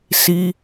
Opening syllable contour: high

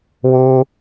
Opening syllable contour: high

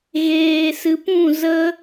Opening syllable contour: low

